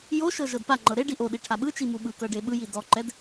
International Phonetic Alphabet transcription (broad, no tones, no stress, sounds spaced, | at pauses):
j o ʃ ɤ ʒ ɤ d p a ŋ͡ǃ ɤ ɾ e ɖ i ʔ o ɗ i ʈʰ a ɓ ɯ t͡ʃ i m u ɓ ɯ k ɤ ɖ e ɓ ɯ j i d ɔ ǃ ɛ d